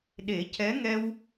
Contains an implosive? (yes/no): yes